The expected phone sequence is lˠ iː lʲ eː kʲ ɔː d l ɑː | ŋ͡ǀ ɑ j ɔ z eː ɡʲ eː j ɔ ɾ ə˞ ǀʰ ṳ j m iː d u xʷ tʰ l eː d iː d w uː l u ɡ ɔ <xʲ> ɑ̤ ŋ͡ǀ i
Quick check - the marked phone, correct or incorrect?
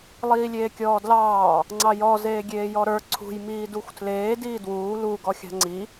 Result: correct